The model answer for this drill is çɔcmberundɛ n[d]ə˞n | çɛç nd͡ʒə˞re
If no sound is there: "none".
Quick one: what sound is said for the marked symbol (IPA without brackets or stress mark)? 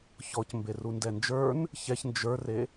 d͡ʒ